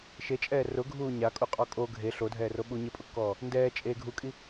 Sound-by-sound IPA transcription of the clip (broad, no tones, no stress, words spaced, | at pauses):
ʃet͡ʃʼɛː rʊɡʱuː ɲakʼuqʼɔ kʼo ɡʱe ɬodʱɛːro ɓu ɲɪpʼʊkːɔː | ndɛː t͡ʃʼe ɡʱukʼi